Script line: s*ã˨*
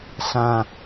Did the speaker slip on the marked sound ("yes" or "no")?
no